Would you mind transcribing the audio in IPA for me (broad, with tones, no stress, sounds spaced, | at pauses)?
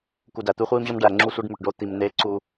k u˨ d æ˨ t̪ u˦ χʷ iː˦ m ʑ ɒ˦ m ɖ æ˨ ŋ͡ǁ u˦ sʷ e˦ ɖ m u˨ ʈ ɖ o˦ t̪ i˨ m n eː˦ ǀ u˦